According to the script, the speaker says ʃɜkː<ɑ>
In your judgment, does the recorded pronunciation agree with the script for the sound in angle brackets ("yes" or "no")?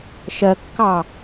yes